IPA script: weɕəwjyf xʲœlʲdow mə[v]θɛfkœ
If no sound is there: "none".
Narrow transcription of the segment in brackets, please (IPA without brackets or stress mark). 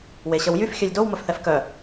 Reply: f